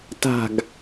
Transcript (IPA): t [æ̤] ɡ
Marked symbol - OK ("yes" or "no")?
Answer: no